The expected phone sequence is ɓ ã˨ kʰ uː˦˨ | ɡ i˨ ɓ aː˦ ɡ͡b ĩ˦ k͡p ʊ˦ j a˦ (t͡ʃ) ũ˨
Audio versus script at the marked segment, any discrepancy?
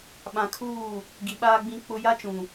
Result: no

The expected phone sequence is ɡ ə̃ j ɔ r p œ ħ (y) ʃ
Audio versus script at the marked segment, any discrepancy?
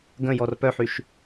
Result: no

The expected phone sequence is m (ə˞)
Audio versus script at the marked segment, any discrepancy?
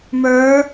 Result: no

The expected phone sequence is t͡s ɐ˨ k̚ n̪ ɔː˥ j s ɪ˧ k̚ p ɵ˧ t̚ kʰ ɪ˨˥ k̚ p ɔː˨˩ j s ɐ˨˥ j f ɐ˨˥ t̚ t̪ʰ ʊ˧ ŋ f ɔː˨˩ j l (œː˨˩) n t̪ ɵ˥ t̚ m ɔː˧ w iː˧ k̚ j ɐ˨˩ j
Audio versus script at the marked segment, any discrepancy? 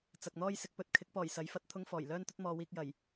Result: yes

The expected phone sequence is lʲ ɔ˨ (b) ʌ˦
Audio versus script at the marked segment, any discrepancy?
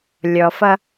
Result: yes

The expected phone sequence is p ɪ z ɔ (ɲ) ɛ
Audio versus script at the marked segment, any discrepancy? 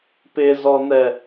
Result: yes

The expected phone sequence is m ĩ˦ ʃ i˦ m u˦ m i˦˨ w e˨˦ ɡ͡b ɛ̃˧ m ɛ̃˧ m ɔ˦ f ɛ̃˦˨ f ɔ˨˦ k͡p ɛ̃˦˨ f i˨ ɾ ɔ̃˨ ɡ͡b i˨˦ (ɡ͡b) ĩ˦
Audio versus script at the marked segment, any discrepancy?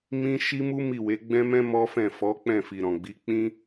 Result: yes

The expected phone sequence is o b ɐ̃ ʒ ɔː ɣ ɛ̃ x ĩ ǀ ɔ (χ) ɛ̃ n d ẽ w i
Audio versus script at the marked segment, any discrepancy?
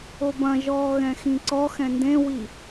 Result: yes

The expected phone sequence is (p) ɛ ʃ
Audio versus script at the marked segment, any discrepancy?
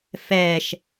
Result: yes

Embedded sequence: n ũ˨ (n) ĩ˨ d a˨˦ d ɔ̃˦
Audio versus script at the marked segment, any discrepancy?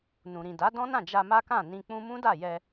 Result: yes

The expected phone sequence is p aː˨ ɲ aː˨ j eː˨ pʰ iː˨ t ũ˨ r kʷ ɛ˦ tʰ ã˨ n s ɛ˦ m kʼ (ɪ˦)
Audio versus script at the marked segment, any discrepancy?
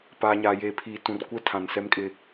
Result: no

